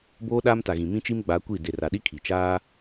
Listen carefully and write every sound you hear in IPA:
boː˦ɗaː˦mta˨ ɣĩ˨mĩ˦t͡ʃi˦mɡ͡ba˨˦ kʷi˦˨ de˨ra˨ɗi˦ kʰi˨ t͡ʃaː˦

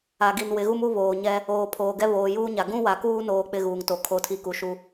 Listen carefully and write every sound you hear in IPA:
a˨ɡi˨nwɪ˨˦ɣu˦m u˦βoː˨ɲɛ˦ | oː˨pʰoː˨ɡɛ˦ βoː˨juː˦ɲa˨ ɡũ˦wa˨kuː˦ noː˦k͡pɪ˦ɣuː˨ŋto˨ kʰo˦tʰi˦ ku˨ʃu˦

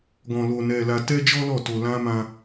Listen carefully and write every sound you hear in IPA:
ɡɔ̃˧lo˧nɛ˧la˧ tɛ˦d͡ʒɔ˦lɔ˦˨to˧ lã˦mã˦

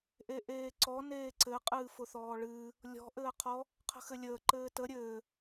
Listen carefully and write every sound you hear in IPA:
ʔeʔeːǀɔ neːǀɘ qʼɨːfʊθɔːɭɨː | lʲɔ̤ ʔɘːqʰɔ | qʰə̤xɘlʲəː ǃɘːtə ɾʲɘː

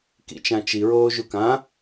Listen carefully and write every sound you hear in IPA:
kḭt͡ʃãt͡ʃiɹoː ʒukã

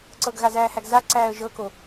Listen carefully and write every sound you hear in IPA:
ǀɤɡɣazæːhæɡ zaǀæːə̯ ʒɤko

